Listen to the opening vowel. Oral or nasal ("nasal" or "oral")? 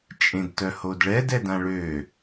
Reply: nasal